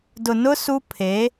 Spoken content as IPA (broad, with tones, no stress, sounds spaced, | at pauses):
d ʊ˨ n ʊ˦ s u˦ pʰ e˨˦